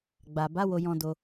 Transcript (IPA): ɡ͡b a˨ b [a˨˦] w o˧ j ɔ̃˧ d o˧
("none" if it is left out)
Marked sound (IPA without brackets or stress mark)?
a˨˦